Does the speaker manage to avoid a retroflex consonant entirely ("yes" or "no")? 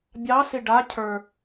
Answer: no